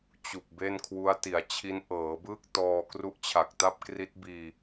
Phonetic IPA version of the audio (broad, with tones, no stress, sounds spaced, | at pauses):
t͡ɕ u˨˩ k̚ b e˥˩ n kʰ w u˦˥ a̯ t i˩˦ a̯ t͡ɕʰ i˦˥ n ʔ ɤː˩˦ b ɯː˥˩ k̚ t ɔː˧ k r u˦˥ ʔ t͡ɕʰ a˨˩ k̚ t a˥˩ p̚ k r i˦˥ t̚ b iː˧